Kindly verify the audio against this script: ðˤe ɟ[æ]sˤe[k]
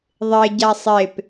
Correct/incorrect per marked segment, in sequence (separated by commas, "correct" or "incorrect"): incorrect, incorrect